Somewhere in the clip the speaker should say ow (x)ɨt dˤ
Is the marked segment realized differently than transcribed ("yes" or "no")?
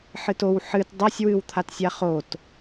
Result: yes